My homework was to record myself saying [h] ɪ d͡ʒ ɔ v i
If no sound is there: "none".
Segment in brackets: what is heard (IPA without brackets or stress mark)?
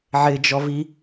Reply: ʕ